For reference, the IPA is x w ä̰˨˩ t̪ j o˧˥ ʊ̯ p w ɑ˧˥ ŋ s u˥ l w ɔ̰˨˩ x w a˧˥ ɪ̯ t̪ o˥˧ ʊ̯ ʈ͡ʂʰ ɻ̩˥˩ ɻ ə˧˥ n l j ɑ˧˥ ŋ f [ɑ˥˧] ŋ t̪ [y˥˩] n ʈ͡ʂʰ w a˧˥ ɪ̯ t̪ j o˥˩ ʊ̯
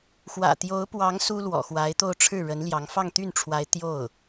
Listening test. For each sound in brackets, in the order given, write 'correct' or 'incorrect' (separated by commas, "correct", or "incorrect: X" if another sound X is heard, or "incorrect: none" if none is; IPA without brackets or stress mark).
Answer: correct, correct